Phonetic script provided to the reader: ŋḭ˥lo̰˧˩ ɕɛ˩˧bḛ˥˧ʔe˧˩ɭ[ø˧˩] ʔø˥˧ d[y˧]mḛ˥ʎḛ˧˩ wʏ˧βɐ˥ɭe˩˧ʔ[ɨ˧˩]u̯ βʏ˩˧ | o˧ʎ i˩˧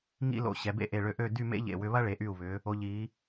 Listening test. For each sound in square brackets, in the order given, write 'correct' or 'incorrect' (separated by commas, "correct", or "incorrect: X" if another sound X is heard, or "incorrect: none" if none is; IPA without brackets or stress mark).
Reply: correct, incorrect: y˥˧, incorrect: y˧˩